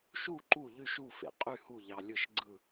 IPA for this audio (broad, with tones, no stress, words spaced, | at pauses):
ʃu˥˨ ǃu˥˨ ʎy˥˨ʃu˥˨ fḛ˧qʼy˥˨ hu˥˨ʎɑ˧ lʲɯ˥˨ʃɡ͡ǀɯ˥˨